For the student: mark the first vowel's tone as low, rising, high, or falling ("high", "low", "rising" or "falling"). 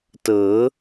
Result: rising